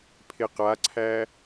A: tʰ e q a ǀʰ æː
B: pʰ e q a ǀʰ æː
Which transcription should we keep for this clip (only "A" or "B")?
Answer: B